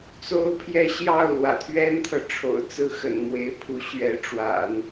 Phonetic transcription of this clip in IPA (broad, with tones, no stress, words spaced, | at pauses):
t͡so˥ʊ̯pʰjɛ˥˧ ɕjɑ˥˩ʊ̯ lwä̰˨˩t̪ʰɥɛ˥nt̪ʰɤ˨ʈ͡ʂʰo̰˨˩ʊ̯ t͡sɹ̩˥˩xə̰˨˩n mwe˧˥ɪ̯pʰu˧˥ ɕɥɛ˧˥ʈ͡ʂwa̰˨˩˦n